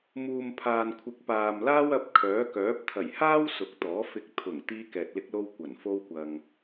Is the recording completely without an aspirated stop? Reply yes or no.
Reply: no